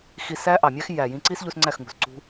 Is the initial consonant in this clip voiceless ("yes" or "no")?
yes